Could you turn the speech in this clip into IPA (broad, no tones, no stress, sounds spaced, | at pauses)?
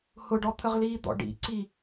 h ʊ ɖ ɔ t̪ʰ ə ʁ l iː d̪ ɔ̰ ɖ ḭ ǀ i